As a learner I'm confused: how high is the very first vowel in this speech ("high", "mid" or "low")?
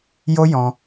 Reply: mid